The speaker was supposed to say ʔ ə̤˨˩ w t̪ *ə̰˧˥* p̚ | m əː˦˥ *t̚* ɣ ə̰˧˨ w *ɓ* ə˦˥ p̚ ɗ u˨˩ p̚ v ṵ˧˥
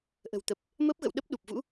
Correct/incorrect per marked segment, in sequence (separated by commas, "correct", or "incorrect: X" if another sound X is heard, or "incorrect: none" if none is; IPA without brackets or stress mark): incorrect: ə˨˩, incorrect: p̚, incorrect: ɗ